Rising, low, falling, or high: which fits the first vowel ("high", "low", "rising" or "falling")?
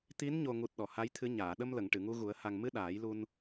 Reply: rising